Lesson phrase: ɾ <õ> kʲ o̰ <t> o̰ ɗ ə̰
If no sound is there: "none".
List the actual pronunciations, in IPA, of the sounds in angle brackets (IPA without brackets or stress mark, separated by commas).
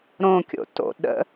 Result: õ, t